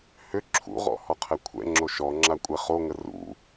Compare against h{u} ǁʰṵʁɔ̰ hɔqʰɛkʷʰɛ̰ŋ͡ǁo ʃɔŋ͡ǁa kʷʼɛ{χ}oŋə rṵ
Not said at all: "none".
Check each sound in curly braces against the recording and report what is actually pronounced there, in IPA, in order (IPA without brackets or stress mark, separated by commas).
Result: ʏ, χ